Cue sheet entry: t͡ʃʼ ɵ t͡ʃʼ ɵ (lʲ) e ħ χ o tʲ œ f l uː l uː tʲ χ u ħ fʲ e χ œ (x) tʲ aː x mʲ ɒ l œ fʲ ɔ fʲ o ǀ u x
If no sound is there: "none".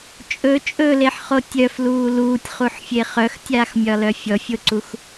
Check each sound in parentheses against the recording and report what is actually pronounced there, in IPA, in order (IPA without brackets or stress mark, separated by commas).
l, x